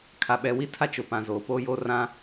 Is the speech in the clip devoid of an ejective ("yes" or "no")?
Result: yes